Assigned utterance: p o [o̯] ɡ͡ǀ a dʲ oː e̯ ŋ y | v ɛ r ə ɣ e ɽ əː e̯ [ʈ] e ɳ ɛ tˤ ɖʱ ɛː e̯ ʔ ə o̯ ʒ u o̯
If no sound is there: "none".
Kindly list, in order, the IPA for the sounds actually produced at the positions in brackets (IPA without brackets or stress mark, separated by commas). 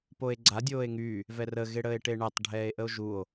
e̯, ʈ